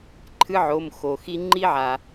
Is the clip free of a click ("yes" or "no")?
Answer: no